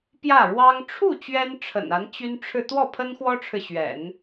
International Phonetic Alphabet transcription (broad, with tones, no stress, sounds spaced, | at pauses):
p j ä˥˩ ɻ w ɑ˥ ŋ ʈ͡ʂʰ u˥˩ t͡ɕ ɥ ɛ˥ n ʈ͡ʂʰ ə̰˨˩ n a˧˥ n t͡ɕ y˥ n ʈ͡ʂʰ ɻ̩˥˧ t̪ w ɔ˥˩ pʰ ə˥ n x w ɔ˥ ʈ͡ʂʰ ɻ̩˨ ɕ ɥ ɛ̰˨˩˦ n